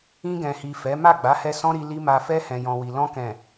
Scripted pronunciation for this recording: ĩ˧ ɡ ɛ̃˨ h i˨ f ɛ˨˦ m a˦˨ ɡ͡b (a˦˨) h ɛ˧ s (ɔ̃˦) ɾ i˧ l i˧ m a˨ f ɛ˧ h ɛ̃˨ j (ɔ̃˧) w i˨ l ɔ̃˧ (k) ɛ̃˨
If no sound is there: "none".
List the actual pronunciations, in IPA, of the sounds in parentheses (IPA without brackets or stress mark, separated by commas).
a˨˦, ɔ̃˦, ɔ̃˨, k